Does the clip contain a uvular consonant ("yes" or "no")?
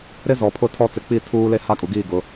no